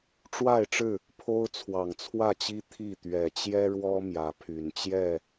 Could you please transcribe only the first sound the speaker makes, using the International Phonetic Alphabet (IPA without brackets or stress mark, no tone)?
ʈ͡ʂ